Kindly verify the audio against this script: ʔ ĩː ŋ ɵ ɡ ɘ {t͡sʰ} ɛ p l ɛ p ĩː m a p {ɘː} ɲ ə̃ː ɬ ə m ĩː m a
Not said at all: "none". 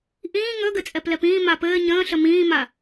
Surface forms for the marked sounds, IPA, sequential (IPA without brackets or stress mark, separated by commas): t͡sʼ, ɘː